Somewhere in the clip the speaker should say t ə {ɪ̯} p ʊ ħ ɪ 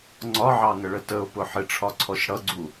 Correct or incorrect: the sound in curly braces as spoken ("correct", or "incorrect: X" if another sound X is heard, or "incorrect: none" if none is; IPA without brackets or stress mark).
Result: incorrect: ʊ̯